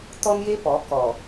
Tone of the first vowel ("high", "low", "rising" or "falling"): high